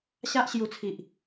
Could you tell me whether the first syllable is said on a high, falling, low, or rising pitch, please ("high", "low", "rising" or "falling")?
high